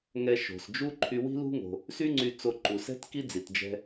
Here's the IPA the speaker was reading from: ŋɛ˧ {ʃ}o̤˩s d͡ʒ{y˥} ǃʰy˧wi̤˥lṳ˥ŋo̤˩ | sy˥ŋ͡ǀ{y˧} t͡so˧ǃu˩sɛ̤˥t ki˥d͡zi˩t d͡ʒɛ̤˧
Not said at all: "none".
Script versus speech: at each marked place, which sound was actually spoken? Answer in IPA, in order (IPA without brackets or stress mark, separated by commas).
ʃ, u˥, y˧